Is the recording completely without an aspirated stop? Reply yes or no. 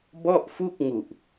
yes